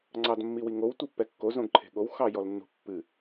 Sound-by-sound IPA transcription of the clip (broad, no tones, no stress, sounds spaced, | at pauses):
ŋ͡ǀ ɑ d mː i w i ŋ o w tʷ i pː ɛ kː o z õ ɡ ǃʰ e̤ ɠ o w x ɑ j ɔ l nː ṳ pː ɨ